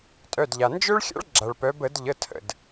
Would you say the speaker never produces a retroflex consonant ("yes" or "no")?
no